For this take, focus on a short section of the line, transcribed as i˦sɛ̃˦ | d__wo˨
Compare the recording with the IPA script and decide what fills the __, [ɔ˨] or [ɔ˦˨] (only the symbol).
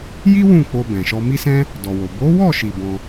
ɔ˨